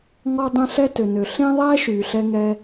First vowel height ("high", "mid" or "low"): mid